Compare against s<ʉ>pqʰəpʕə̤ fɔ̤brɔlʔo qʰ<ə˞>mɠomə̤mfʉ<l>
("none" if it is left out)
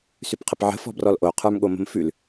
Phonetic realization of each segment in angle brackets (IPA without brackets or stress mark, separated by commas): ʉ, ə˞, l